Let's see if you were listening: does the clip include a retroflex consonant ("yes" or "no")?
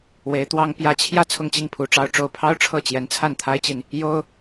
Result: yes